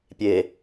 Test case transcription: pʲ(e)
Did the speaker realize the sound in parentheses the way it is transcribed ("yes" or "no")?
yes